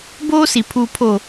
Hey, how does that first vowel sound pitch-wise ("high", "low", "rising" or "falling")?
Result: high